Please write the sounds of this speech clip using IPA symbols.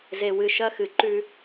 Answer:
z e˨ w ɨ˨ ʃ ɐ˦ x ɨ˨ ǃ ʉ˦

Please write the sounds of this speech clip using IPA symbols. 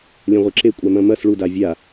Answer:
lʲ ɐ̃ ʁʷ ɛ ǁ e kʷʼ a m ɐ̃ m ɐ s ɭ u d a vʲ a

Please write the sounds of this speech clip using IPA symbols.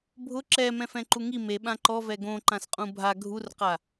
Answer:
bʱ ʊ ǁ ɛ m ɛ̃ f ɛ̃ ǃ u ŋ i m e ɓ ã ǃ ɔ v ɛ ɡ õ ǃ ã s qʼ ũ bʱ a ɡʱ u r q a

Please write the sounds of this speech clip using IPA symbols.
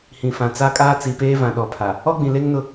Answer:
h ĩ˨ f ã˨ t͡s a˦ kʼ aː˦ t͡s i˨ p eː˦ v ã˨ ɗ ɔ˨ pʰ a˨ | ɔ˦ ɡ͡b ĩ˨ l e˦ ŋ n ʊ˦

